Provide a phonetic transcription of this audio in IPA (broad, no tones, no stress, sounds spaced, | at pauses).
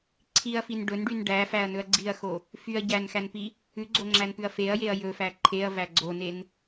ǀʰ i ɐ̯ f i n ɖ ɵ n ɖ y n ɖ æ f æ ɐ̯ n ɵ ɐ̯ ɡ͡ǀ i ɐ̯ x o | f y ɐ̯ ɟ æ n x æ n p i | ʉ ɡ͡ǀ o ŋ͡ǁ æ n p ʉ ɐ̯ f e ɐ̯ j e ɐ̯ j ɵ f æ ǃʰ e ɐ̯ v æ ɡ͡ǀ o n e n